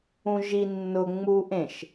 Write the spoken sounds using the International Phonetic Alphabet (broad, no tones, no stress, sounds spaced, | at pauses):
ũ ʒ i nː ʊ ŋ͡m u ʔ ẽ ʃ